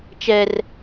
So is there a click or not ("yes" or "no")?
no